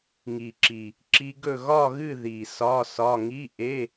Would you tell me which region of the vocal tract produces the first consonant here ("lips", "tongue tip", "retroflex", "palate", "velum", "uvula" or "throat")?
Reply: velum